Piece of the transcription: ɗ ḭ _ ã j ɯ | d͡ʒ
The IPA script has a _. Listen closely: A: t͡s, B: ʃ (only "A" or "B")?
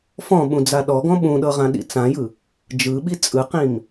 A